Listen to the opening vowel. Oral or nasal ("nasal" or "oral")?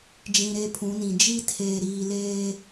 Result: nasal